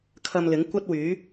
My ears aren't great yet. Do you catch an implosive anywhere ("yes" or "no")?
no